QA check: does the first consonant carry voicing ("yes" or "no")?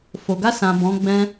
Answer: no